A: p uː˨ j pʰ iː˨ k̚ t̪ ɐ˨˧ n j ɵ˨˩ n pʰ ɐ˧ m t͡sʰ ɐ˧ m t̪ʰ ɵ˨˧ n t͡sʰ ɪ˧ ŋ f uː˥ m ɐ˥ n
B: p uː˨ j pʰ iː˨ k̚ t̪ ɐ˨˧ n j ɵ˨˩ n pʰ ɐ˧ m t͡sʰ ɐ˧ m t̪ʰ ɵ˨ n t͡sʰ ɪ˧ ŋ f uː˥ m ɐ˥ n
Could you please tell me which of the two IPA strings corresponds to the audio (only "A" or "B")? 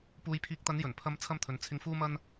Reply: B